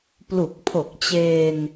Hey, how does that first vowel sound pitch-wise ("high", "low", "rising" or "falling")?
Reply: low